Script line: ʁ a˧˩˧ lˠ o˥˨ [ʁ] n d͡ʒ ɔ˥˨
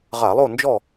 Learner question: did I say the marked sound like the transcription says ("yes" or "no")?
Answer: no